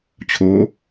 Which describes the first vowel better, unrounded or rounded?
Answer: rounded